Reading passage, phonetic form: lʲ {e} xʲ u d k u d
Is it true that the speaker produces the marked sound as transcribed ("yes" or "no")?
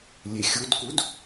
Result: yes